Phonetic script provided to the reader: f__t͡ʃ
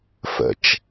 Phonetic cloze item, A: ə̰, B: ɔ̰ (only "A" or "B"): A